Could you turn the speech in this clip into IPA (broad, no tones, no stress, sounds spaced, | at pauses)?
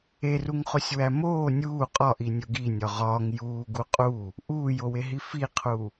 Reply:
e r u ŋ χ o sʲ w æ m oː nʲ uː qʼ ɒ ʔ i nʲ o ɡ i nʲ ɒ ʁ ɒː ŋ j uː ɡ u qʼ u | ʔ uː j o w e ɦ i f i qʰ u